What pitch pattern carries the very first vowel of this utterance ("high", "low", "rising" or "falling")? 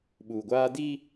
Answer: low